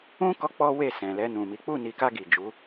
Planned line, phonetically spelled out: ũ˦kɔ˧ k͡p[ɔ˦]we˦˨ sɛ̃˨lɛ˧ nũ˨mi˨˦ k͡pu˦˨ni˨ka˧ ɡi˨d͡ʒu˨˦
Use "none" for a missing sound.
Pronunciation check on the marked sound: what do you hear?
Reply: ɔ˦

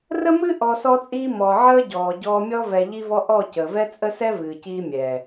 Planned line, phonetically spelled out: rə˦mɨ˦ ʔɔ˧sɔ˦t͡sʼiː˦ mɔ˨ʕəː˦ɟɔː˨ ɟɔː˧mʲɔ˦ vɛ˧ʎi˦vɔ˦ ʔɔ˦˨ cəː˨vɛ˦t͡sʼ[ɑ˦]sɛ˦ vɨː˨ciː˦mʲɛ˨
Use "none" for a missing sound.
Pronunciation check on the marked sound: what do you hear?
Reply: ə˦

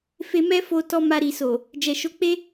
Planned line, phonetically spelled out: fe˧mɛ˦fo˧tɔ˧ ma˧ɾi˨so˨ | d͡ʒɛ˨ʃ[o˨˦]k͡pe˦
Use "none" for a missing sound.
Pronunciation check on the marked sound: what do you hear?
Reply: o˨˦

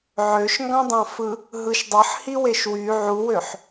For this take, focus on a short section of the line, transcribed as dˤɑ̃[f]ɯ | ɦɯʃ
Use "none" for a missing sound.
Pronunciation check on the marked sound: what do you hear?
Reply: f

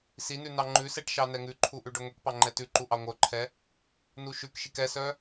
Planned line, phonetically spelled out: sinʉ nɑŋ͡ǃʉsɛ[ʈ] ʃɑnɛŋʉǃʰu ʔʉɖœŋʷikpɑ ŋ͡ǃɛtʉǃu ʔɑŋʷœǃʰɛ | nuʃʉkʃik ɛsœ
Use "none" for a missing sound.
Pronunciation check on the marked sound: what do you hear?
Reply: ʈ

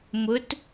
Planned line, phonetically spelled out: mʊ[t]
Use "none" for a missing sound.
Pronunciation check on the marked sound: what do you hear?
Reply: t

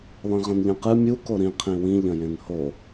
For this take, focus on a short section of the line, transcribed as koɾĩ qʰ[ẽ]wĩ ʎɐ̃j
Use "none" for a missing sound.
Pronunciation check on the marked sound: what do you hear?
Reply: ĩ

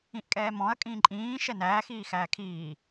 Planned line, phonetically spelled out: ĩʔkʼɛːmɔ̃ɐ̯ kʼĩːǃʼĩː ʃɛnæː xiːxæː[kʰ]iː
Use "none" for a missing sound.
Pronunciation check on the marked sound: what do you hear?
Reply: kʰ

